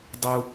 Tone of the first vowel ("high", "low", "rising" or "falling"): high